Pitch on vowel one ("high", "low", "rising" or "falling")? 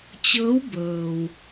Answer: rising